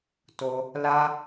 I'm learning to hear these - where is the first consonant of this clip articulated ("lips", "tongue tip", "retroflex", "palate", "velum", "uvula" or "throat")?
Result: tongue tip